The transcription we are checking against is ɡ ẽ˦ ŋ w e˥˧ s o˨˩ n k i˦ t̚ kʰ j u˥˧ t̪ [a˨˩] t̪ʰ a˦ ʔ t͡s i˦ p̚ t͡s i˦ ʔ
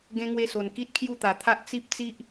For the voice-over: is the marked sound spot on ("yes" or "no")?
yes